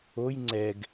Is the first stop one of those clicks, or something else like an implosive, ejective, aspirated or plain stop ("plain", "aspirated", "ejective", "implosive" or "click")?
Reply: click